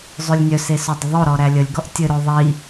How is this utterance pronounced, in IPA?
zˤʉlʲnʲœse sœdˤəðˤoɾɔ ɾælʲəlʲɡɔʔ tʲɘɾo ðˤi

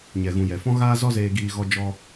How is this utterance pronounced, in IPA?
ɲɛ˨ɣũ˨ jɛ˨fɔ̃˦ ɣaː˦zɔ˦ zeː˧ɡiː˧ ɣɔ˦d͡ʒɔ˦

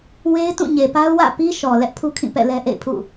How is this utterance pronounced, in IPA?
we˦ɪ̯tũ˦˨ɲe˨pa˦ʊ̯ wä̰˦˨pi˦ʃɔ˨ lɛ˦ʔpʰu˦kʰĩ˦˨ pɛ̰˦˨lɛ˦ʔḛ˦˨ɪ̯pʰṵ˦˨

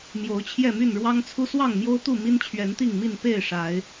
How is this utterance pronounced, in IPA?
mjo˨˦ʊ̯t͡ɕʰjɛ˥˨my˥˨n ɻwɑ˦ŋt͡sʰu˦ swɑ˥˨ŋmjo˦ʊ̯t̪u˥˨ mi˦nt͡ɕʰɥɛ˨˦nt̪i˥˨ŋmi˥˨n pe˥˨ɪ̯ ʂa˨˦ɪ̯

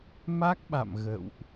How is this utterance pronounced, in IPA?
ma˦˥k̚ɓa̰˧˨m ɣə̰˧˨wʔ

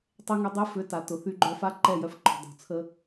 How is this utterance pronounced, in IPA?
tˤe˦ŋy˧ dˤe˦fʏ˨˦ta˨ tʊ˨θy˧ɡ͡ǃœ˧fa˦ ǃɛ˦˨jœ˧f ǃɔ̤˨dˤo̤˨t͡sʰə˧

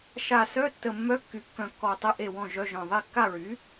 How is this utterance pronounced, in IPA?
ʃa˧˩sœ˧˥˧ tːə˧˩mːœ˧˥˧kːy˩˥ kːœ̃˧˩kːɔ˧˩tˤə˧˥˧ ʔe˥˩wɔ̃˥˩ʒœ˧˥˧ʒœ̃˧˩ ðˤe˥˩kːa˥˩ɹy˩˥

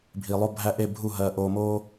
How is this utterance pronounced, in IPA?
bʱi˨lˠo˦bʱæ˦ ʔe˦˨bʱu˦˨ɦɜ˨ ʔoː˨moː˦

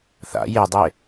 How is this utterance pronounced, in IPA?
θa̰ jedˤe

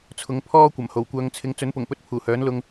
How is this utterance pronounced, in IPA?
t͡sʰʊ˨˥ŋpʰɔː˥kʷɐ˨˩mho˨˩w kʷœː˨ŋt͡sʰɪ˨˧ŋ t͡sɵ˨˥npʊ˨˩ŋpɵ˧t̚ pʰuː˨˩hœː˨˥nlʊ˧ŋ

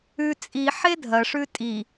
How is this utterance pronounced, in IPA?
ʉ t͡sʼi ħedʱɐʂʉ tʼi

